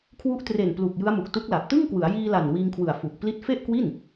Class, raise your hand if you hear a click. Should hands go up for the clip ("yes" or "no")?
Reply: no